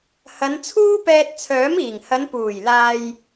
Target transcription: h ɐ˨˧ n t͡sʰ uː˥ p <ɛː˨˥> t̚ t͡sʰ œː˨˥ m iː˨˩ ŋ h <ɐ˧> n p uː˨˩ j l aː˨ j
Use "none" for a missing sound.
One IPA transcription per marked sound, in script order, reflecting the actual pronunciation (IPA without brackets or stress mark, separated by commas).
ɛː˧, ɐ˨˧